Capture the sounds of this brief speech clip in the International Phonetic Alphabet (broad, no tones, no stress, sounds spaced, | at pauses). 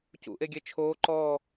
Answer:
c ṵ ʔ e ɡʲ e t͡ʃʰ oː ǃ ɔː